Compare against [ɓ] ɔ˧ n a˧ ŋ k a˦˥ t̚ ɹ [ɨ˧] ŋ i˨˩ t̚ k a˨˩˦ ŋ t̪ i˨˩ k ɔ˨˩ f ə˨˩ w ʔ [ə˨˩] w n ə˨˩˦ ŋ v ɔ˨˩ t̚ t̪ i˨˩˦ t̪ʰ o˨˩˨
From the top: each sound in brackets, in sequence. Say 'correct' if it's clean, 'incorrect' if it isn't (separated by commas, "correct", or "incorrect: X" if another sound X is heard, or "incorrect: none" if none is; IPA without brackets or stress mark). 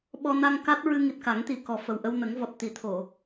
correct, correct, incorrect: ə˧